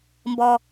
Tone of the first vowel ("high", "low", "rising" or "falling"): low